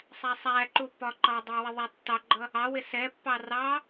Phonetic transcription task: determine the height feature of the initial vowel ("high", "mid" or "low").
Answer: low